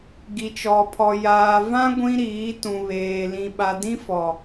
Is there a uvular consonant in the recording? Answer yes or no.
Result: no